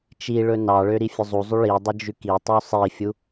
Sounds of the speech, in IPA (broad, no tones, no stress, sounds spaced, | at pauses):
t͡ʃ i ɭ ɵ n ɑ ɭ ø ɾ i fʲ ɵ zˤ u zˤ y ɭ i dˤ ɵ d͡ʒ ʉ k i tˤ y sˤ i fʲ u